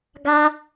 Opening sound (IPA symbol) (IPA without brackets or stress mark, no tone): ɡ